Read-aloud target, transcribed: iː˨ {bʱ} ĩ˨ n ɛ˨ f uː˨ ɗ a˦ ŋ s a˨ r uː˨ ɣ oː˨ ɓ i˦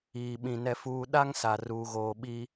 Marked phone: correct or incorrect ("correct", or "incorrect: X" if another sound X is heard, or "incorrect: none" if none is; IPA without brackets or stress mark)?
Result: incorrect: ɓ